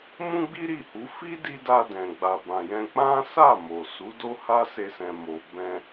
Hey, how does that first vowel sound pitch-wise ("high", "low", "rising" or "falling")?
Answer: high